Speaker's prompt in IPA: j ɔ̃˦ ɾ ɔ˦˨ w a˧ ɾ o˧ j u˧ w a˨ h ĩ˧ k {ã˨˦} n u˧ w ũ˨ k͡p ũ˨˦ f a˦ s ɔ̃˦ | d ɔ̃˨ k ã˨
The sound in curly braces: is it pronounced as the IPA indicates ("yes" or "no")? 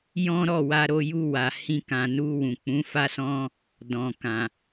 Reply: no